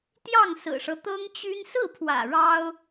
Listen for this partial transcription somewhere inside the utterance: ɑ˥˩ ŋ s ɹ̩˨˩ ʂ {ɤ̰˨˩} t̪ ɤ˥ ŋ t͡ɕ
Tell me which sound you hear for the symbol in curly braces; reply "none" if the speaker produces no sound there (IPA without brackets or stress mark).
ɤ˦